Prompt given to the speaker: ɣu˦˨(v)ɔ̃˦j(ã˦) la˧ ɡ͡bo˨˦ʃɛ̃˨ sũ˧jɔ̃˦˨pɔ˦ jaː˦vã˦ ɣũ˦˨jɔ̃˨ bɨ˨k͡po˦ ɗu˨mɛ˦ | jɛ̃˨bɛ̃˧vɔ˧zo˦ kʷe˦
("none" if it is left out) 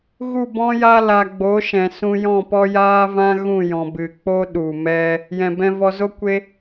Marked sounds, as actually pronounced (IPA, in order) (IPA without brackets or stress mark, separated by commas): b, a˦